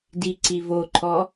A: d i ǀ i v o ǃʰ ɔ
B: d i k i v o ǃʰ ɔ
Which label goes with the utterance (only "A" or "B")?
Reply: A